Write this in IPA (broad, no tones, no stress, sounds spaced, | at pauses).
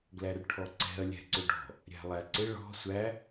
ɡ l æ r ʈʰ ɔ ǀ ɛ̤ ɐ̯ lʲ æ̤ ǀ ʊ ɖ ɔ̤ | ɾʲ æ̤ lˠ æ ǀ ɪ ɭ ɔ̤ sʷ æ